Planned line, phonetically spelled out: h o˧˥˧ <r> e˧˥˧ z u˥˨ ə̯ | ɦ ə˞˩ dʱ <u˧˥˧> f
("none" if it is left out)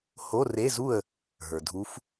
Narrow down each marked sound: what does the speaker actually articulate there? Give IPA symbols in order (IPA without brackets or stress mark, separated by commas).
r, u˨˦